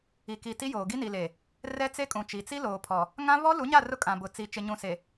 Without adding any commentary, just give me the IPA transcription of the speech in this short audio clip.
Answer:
i˨ k i˨ t i˦ j oː˨ ɡ i˦ n i˨ l e˨ | r ɛ˦ t͡s e˦ kʼ ũ˨ t͡ʃ i˨ t͡s i˦ l oː˨ pʰ ɔ˨ | ŋ ã˦ β ɔ˦ l u˨˦ ɲ a˦˨ r ʊ˦ kʼ ã˨ b ʊ˨ t͡s i˨ t͡ʃ ɪ˨ ɲ ũ˨ s e˨

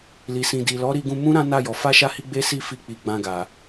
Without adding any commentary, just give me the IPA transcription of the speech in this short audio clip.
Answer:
l i˨ s ĩ˨ d i˨ l ɔ˨˦ ɾ i˧ ɡ ũ˧ m ũ˦ ɾ ã˦ n a˦˨ j ɔ˨ f a˧ ʃ a˧ h i˧ ɡ͡b e˦ s i˦˨ f i˧ k͡p i˨ ɡ͡b ã˧ ɡ a˨

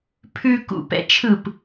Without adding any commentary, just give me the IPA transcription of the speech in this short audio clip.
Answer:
pʰ ʉ k ṵ p ɛ̰ t͡ʃʰ ɯ p

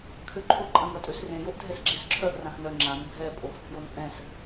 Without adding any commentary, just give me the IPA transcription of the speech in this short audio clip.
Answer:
kʰ ø ǃʰ ʊ ǃʼ ɐ̃ ŋ ɐ tʼ ø s r ẽ j o ʔ dʱ ɛ s ɡ͡ǁ e s ǁʰ œ ʔ r ã x n œ ŋ͡ǁ ã n bʱ ɛ pʼ o x pʰ j o n pʼ ɛ̃ s

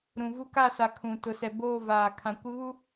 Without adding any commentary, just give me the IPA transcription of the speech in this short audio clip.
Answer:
ɾ ũ˨ v u˦ k a˦˨ s a˨ kʰ ũ˨ t ʊ˨ s ɛ˨ b oː˦˨ v aː˨ kʰ ã˨ kʷ ɪ˦ β u˦

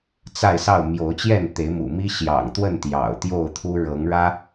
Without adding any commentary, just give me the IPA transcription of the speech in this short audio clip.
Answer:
t͡s a˥˨ ɪ̯ s ɑ˥˨ ʊ̯ m j o˨˦ ʊ̯ t͡ɕ j ɛ˥˨ n t̪ e˨˦ ɪ̯ m ṵ˨˩ m i˦ ɕ j ɑ̰˨˩ ŋ t̪ w ə˥˨ n t̪ j ɑ̰˨˩ ʊ̯ t̪ j o˥˨ ʊ̯ t̪ʰ u˦ ɻ ɤ˨˦ ŋ ɻ ä˦

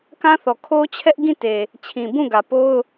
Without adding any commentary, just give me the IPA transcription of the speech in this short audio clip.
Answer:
k ã˦ θ ɔ˨ kʰ o˦ t͡ɕʰ ɛ˦ ʔ ɡ ĩ˦˨ t e˨ | t͡ɕʰ ĩ˨ b ũ˦˨ ɡ ä˨ p o˦ ʊ̯

